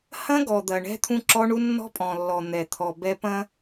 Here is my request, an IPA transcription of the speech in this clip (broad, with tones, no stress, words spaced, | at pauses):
hɐ̃˦ɡɔ˨d̪ɐ˨ ɳɛ̤˦t̪ʰũ˦ǁɔ˦ɳu˦ nːɔ̤˦pʼɔ̃˨lːɔ˨ n̪ɛ˨t̪ʰɔ˨ bɛ˦pɐ̃˦